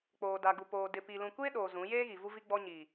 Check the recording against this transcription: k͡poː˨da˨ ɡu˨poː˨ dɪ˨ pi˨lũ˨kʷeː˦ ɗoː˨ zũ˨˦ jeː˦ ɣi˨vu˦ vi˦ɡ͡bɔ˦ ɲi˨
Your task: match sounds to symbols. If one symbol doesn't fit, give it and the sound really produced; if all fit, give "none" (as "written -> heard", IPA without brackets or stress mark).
none